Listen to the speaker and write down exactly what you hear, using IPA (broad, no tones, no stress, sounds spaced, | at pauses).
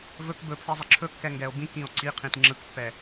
v ɵ k b ɵ pʰ i zˤ ɪ ǁʰ ɵ kː ɛ ŋ ɡ ɛ o̯ b ĩ k ĩ o̯ ǀ i qʰ ĩ t ŋ͡ǁ ɯ k pː ɛ